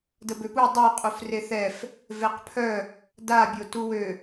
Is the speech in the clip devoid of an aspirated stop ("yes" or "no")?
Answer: no